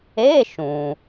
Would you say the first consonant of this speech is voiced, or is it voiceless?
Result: voiceless